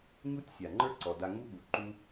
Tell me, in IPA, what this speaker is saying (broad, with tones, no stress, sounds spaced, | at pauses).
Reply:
ɲ u˦ tʲ sʲ a˨ ŋ͡ǃ ə˞˦ ǀ ɔ˨ d a˧ ŋ u˦ ɠ u˨ ǃ u˦